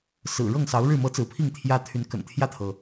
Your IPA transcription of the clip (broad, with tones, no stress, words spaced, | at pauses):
sɹ̩˨˩ɻɤ˥˨ŋsɑ˨˦ʊ̯ɻɻ̩˥˨ mɤ˦t͡sɹ̩˨˦pʰi˥˨ŋ t̪ʰjä˦t̪ʰy˨˦n kə̰˨˩nt̪ʰjä˥˨t̪ʰɤ˩